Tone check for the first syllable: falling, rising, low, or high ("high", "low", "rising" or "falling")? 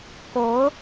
rising